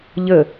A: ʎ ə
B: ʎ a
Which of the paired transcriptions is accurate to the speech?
A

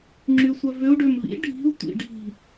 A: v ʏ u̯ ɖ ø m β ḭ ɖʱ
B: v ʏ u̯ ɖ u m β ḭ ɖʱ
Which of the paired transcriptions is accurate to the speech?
A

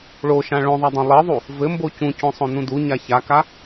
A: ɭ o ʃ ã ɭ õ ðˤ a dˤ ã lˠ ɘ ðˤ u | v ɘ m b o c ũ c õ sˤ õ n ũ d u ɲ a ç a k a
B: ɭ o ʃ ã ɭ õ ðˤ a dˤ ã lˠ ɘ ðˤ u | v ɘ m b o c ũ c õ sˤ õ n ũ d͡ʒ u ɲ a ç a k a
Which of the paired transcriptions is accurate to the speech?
A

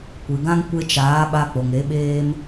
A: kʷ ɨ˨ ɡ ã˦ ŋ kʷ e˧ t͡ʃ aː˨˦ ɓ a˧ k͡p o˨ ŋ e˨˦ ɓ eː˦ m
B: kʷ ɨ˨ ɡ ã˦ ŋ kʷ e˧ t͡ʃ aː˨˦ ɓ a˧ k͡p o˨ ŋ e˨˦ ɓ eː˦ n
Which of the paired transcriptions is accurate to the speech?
A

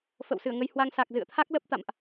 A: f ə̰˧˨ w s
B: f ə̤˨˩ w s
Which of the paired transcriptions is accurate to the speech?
A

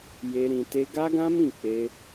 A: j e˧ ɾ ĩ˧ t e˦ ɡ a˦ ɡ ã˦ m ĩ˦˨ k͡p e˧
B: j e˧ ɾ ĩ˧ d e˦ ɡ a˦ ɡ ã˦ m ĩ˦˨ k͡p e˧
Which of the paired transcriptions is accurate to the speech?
A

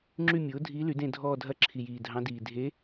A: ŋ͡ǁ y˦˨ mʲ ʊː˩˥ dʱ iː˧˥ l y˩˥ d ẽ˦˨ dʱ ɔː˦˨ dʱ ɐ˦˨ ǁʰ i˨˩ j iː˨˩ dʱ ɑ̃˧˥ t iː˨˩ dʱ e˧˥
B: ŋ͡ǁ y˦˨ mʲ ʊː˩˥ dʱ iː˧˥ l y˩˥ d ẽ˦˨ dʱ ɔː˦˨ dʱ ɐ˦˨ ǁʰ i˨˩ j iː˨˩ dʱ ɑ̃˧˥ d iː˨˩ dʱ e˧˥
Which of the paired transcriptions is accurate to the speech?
B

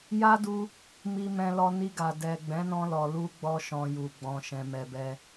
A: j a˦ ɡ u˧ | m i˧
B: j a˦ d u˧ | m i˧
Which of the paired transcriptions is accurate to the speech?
B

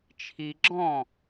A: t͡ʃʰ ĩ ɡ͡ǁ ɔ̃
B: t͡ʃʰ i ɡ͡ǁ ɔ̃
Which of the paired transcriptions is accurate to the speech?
B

